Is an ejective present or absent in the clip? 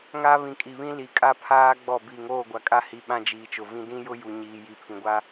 present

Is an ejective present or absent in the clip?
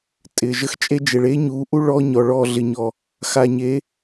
present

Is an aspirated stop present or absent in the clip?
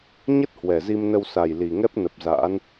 absent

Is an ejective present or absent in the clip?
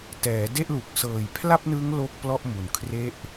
absent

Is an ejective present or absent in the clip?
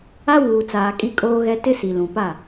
present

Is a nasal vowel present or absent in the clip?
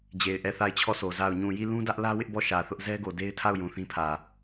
present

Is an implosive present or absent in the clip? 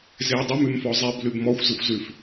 absent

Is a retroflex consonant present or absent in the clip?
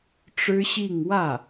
present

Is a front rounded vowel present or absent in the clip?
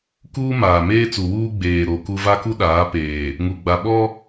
absent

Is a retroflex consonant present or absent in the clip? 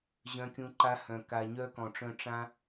present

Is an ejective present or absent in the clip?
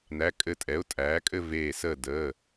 present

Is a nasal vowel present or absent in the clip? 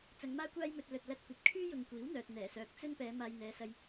absent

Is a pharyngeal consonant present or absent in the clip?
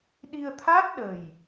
absent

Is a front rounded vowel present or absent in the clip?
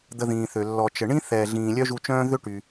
present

